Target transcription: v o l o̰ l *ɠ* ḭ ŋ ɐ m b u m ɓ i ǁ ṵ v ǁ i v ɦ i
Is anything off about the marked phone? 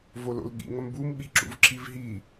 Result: no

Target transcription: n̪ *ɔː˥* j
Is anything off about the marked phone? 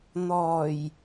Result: yes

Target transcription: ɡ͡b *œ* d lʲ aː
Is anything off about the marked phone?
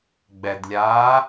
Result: yes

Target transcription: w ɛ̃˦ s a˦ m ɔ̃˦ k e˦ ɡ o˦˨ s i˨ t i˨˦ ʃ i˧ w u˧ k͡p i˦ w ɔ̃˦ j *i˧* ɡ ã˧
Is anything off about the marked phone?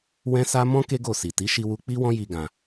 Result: no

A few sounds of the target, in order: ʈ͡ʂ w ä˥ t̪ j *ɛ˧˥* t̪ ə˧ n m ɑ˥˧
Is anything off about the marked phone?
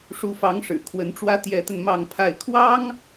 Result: no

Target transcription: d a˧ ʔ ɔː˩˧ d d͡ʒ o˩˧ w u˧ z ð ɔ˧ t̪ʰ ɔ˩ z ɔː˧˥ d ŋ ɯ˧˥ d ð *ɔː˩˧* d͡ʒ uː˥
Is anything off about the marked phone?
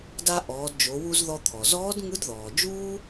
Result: yes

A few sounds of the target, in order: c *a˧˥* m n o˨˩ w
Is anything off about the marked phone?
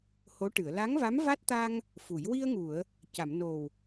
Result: yes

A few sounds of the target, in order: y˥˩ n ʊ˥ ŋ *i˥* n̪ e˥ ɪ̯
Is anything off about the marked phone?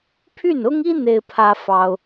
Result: no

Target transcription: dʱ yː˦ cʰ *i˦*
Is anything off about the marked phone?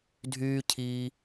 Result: yes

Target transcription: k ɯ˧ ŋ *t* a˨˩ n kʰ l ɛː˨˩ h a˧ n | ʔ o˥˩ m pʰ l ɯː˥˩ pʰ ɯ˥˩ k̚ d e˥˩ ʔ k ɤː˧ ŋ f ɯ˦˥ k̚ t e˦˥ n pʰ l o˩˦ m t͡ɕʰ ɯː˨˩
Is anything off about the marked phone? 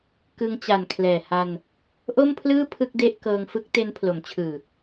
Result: yes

